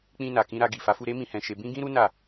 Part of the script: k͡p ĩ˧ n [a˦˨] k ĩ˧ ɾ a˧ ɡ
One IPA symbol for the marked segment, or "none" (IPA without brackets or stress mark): a˨